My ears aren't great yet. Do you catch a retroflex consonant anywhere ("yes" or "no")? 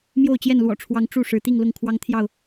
yes